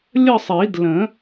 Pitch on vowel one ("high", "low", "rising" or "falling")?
falling